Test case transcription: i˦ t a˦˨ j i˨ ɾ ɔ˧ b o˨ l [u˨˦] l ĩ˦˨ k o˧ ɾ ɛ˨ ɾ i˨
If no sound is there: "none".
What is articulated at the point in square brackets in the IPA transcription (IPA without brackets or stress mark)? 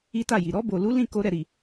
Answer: u˨˦